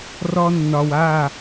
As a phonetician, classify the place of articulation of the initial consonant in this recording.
alveolar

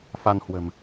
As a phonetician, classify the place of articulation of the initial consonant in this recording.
labial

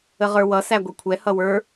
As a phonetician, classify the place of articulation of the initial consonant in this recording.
uvular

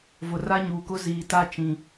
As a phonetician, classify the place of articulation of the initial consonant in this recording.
labial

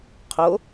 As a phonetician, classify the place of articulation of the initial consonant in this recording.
uvular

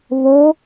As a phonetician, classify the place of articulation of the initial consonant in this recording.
labial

